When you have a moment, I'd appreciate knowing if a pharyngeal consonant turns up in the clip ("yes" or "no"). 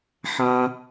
yes